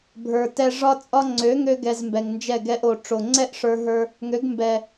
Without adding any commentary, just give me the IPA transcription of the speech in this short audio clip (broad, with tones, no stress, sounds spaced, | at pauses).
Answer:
bʱ ə˞˨ t ɛ˧ ʐ ɒ˦ t͡sʼ ɒ˦ ŋ͡ǀ ø˨˦ ŋ ø˧ ɡ ɛ˧ z m b ɛ˨ ŋ n d͡ʒ ɛ˦˨ ɡ ɛ˧ ʔ o˨ ʈ͡ʂ o˨ ŋ͡ǀ ɛ˦ ʔ ʂ ə˞˧ ɦ ə˞˧ | ŋ ø˨˦ ɡ m b ɛ˨